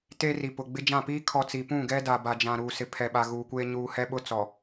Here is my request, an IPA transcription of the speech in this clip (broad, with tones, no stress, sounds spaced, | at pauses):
t e˦ r i˨ p ʊ˨ ɡ͡b ɪ˦ d͡ʒ ã˦˨ p iː˦ kʰ ɔ˨ t͡s i˨ p ũ˦˨ ɡ ɛ˦ d a˨ b a˨ d͡ʒ ã˨ ɾ uː˨ s ɪ˨ pʰ ɛ˨ ɓ a˨ ɣ uː˨ kʷ eː˦ ɲ uː˨ h ɛ˦ ɓ ʊ˦ t͡s ɔ˨